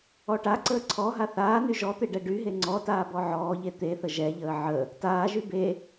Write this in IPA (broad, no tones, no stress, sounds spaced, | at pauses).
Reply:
ɔ ʈ a ǀ əː ǀʰ ɔ ɦ a θ aː n y ʒ ɔ t̪ e ɖ ɛ ɖ y ɦ e ŋ͡ǀ ɔ t aː b ɔ ʕ ɔː ʎ e t̪ e θ ə ʒ ɛ ʎ əː ʕ ə | t aː ʒ y b e